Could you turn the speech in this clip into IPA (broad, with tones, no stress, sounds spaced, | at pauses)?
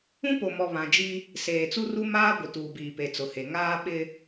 ũ˦ p o˨ m ɔ˨ β ã˨ d͡ʒ i˦ | s eː˨ t͡s u˦ r u˦ m aː˦ ɡʷ ɪ˨ t uː˨ b iː˨ p e˨ t͡s ʊ˨ h e˨ ŋ aː˦ ɓ ɪ˦